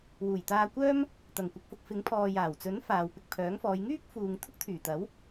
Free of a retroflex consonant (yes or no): yes